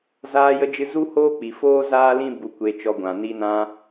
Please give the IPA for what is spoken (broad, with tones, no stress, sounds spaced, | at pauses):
z aː˧ j ə˧ d͡ʒ ɨ˧ z u˦ h oː˦ k͡p i˨ f oː˦ z aː˦ l ĩ˦ b u˧ kʷ e˧ t͡ʃ ɔ˧ ɡʷ ã˨ n i˧ n ã˧